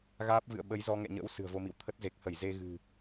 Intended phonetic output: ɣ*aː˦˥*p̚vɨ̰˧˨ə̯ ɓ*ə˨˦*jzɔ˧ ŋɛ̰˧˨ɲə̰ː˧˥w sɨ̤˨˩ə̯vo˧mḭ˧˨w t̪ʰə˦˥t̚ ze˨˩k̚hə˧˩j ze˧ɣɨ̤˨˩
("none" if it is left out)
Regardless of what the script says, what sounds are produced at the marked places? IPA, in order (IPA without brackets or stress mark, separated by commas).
aː˦˥, ə˨˦